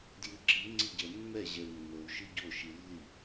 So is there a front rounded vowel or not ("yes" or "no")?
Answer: no